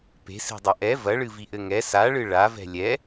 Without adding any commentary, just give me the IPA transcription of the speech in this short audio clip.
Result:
p e̤ s i̤ dˤ ɐ ʔ ɛ v ɐ ɭ ɨ v i ʔ ɘ ŋ ɛ s a ɭ ɨ ɭ a v ɛ̤ lʲ ɛ

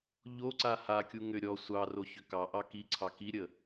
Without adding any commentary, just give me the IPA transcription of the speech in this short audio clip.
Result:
ʎ o ǀ a h a kʲ u ŋ ʏ ɾʲ ɔ sʷ ɑ r o ç ʏ k ɑ ʔ ɑ k i ǀʰ ɑ k i ɾʲ ə

